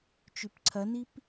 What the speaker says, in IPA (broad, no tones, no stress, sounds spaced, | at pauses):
t͡ʃ ʉ p ǀʰ ɐ n i p